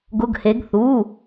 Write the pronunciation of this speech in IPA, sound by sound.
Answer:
ɡʊ˩˧˩ɡhe˩˧ɡ θu˩˧˩

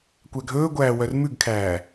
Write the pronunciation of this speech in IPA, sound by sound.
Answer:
kʷæɡʱɵːɡʷæː wœrmʉɡkʰæː

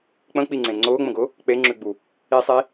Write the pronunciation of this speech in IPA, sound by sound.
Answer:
k͡pə̃k͡piŋ͡ǀẽ ŋ͡ǀʊːŋ͡mə̃ɡʊ | k͡peŋ͡ǁʉɡ͡bu | isˤi

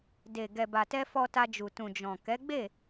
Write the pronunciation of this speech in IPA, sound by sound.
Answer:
de˨ ɡɛ˨ba˨tɛ˧ fɔ˧ta˧d͡ʒu˨ tũ˨d͡ʒɔ̃˨ kɛ˨˦ɡ͡be˦˨

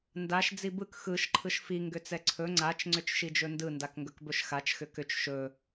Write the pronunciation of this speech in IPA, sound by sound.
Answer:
ndaʃ d͡zibɯk xɯʃ ǃʰɯʃfi ŋɡʏt͡sɛǀʰɵ ŋ͡ǀat͡ʃ ŋ͡ǀʏt͡ʃʃid͡ʒɵndɯ ndakŋɡɵkbɵʃxat͡ʃ xʏkʏt͡ʃ ʃɵ

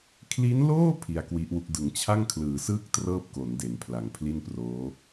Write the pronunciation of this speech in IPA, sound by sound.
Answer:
kʰli˦˥nloː˥˩ pʰi˧a̯kwi˦˥ʔwu˦˥k̚ dɯ˩˦ŋt͡ɕʰa˥˩ŋkʰlɯː˩˦sɯː˥˩k̚ trɤː˥˩p̚ko˩˦n de˩˦npʰla˩˦ŋpʰli˥˩nproː˦˥

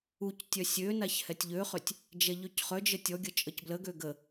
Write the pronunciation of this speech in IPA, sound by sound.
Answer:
uctʲœ sʲønaç hɛtʲʎøχøtʲ | d͡ʒɛʎøcχœd͡ʒə tʲɔɡʲə t͡ʃʼəcbləɡø ɡə

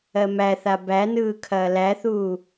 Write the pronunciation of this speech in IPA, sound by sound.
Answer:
ɜmæθa bænɯː kʰɐːlæθuː

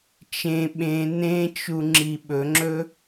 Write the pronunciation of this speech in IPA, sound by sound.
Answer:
t͡ʃẽ ɓẽ nẽt͡ʃu ŋ͡ǁiɓɵŋ͡ǁɵ

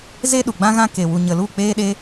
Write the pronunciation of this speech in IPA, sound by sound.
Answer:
ze˦ ɗu˨ɡ͡bã˦ɣã˦ ke˨wu˨ɲə˨lu˦˨ k͡peː˦ɗe˦

